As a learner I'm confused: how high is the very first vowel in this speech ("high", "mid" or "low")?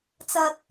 low